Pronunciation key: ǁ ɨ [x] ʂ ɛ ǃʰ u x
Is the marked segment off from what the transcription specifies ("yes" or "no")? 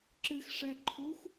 no